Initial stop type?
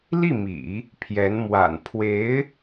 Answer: aspirated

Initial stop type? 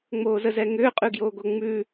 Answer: ejective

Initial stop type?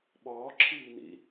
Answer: implosive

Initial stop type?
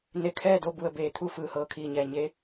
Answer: aspirated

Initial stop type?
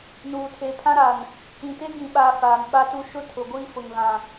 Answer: aspirated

